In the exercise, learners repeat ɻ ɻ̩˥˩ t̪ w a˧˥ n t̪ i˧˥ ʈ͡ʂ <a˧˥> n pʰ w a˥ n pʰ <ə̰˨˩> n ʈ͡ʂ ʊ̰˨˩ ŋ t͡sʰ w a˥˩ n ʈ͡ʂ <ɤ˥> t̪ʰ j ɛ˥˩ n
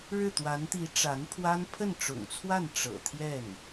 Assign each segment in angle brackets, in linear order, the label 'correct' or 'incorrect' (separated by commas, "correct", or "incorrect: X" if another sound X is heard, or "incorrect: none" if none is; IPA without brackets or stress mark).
correct, incorrect: ə˥˩, incorrect: ɤ̰˨˩